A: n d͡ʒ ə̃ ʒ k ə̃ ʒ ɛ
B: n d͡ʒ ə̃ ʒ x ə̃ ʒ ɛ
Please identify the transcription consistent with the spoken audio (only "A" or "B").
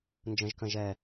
A